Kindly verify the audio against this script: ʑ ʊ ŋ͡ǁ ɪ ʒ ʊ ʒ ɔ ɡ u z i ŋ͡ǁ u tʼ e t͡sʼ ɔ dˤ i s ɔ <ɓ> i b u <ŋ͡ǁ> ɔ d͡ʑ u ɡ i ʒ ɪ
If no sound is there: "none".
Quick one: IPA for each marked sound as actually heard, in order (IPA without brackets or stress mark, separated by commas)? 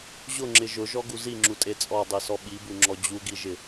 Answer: ɓ, ŋ͡ǁ